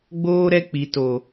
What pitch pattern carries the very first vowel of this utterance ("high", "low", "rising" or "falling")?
high